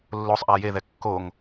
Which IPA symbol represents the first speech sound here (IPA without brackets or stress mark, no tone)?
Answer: lː